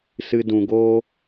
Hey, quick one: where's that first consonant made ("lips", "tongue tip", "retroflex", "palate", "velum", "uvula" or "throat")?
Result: tongue tip